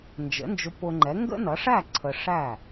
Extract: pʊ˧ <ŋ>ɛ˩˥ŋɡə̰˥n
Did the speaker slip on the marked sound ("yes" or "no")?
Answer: yes